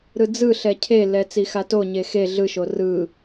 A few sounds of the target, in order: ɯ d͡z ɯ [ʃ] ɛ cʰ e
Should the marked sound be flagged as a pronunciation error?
yes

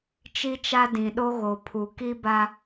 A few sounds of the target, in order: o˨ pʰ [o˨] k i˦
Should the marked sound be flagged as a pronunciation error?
yes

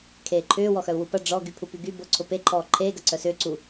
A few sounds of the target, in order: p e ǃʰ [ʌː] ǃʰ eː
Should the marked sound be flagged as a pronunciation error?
yes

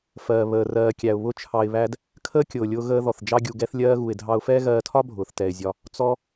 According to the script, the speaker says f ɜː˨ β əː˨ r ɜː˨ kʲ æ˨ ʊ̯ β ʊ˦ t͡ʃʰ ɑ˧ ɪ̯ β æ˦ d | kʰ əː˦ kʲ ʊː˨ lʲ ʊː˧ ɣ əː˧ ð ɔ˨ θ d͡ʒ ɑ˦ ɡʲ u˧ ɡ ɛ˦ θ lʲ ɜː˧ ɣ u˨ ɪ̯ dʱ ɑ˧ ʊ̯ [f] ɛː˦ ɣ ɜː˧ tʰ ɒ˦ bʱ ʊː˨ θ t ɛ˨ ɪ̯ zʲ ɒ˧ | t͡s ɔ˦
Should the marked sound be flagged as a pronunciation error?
no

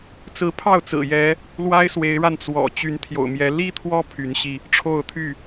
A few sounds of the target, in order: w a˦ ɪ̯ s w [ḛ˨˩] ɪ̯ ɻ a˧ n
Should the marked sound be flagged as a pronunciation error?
yes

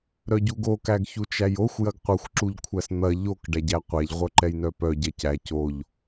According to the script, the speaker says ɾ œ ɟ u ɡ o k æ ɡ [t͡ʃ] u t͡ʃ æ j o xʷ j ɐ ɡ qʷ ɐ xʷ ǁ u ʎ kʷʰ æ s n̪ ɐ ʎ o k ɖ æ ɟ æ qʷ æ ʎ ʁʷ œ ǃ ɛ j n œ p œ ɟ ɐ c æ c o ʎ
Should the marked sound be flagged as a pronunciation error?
yes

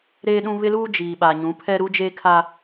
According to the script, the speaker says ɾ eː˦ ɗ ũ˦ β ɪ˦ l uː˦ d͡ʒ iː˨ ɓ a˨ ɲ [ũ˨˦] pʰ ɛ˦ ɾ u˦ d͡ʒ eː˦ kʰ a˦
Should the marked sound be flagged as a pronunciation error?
no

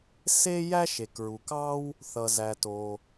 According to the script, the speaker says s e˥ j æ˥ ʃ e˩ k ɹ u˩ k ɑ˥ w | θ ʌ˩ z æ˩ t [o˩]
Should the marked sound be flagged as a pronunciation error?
no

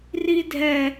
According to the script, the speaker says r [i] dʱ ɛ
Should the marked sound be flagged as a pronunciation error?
no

